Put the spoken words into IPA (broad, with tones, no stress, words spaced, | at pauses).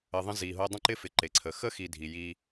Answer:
ə˨ ðˤə̃˦zi˨ɦo˦ dˤə̃˥ǃɪ˥fɪ˨ ǃe˩ǀʰə˩xə˥xi˨ dʱi˨ji˦